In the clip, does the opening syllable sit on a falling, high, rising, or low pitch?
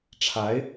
rising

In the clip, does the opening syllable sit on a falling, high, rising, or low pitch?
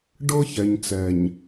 high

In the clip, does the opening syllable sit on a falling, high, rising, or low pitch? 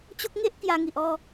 high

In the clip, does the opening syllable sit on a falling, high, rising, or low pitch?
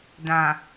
low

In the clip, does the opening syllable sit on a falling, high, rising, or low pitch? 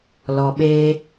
low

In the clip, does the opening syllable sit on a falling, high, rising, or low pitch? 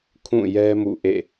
falling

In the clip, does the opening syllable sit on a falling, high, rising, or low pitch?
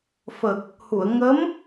low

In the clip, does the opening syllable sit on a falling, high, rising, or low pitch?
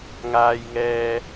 low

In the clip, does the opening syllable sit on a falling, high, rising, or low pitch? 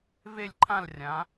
falling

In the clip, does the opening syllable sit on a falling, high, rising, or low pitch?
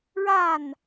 falling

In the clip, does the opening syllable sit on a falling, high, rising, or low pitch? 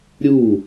falling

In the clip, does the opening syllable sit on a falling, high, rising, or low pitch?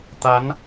rising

